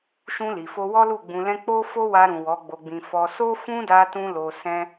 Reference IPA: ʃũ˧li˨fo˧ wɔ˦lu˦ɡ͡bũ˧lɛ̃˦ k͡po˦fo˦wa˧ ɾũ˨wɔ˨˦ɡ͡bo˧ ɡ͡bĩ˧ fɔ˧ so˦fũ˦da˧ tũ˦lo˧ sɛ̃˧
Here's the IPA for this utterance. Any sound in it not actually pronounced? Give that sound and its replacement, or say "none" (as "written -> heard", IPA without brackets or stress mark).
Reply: u˦ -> u˦˨